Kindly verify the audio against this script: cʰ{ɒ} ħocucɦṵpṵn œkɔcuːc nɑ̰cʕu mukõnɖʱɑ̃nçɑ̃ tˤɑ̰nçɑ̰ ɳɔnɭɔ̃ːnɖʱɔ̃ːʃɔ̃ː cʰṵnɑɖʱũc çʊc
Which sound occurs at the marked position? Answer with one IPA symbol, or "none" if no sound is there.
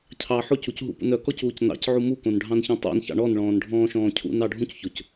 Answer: ɑ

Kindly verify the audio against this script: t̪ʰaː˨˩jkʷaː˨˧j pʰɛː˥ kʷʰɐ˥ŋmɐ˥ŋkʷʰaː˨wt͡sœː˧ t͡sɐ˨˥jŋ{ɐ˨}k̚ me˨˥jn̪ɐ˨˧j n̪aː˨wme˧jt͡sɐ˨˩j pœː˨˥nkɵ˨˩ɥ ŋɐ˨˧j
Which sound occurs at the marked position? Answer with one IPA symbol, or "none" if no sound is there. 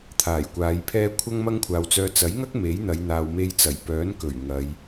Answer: ɐ˥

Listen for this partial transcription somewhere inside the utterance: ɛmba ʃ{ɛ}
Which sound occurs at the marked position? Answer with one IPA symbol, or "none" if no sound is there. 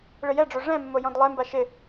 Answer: ɪ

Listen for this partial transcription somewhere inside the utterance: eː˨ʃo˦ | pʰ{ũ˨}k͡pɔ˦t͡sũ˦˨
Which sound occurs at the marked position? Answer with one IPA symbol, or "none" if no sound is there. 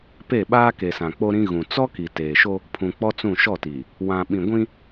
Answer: ũ˨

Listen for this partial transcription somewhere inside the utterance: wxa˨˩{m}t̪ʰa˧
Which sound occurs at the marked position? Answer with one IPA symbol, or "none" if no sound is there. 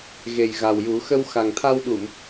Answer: ŋ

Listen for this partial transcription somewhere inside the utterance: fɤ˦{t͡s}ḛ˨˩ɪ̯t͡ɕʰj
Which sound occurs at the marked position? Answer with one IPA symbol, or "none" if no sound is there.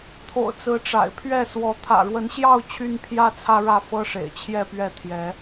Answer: ʂ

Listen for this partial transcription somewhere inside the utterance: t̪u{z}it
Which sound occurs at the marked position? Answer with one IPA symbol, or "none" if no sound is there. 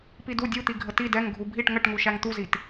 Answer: z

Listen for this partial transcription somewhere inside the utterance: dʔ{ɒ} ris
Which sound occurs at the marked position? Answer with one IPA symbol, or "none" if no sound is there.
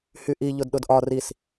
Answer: ɒ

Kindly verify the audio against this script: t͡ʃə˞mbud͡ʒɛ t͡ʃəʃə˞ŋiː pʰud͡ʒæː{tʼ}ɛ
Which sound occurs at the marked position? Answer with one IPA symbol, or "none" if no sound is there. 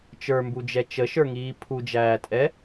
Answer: tʼ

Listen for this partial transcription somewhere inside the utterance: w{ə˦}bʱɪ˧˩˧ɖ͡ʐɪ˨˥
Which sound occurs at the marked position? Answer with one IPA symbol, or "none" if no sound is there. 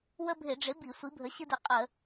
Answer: ə˦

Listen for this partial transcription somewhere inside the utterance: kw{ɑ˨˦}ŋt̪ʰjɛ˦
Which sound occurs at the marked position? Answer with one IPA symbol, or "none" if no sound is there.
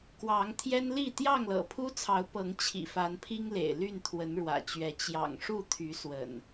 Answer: ɑ˨˦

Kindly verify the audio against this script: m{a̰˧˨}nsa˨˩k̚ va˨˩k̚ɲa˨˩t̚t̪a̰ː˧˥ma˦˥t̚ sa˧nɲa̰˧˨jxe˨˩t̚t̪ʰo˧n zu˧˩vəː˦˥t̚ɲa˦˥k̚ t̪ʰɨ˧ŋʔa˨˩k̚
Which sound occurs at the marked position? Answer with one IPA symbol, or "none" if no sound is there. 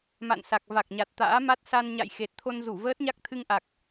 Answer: a̰˧˨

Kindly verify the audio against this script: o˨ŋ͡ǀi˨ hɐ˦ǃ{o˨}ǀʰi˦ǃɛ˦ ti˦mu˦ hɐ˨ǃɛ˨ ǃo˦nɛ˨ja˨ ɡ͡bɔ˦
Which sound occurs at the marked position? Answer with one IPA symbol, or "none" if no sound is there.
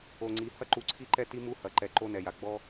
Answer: u˨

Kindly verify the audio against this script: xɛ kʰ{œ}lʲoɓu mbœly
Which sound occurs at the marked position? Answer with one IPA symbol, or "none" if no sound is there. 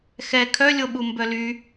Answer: œ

